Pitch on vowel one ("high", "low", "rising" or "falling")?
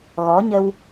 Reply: rising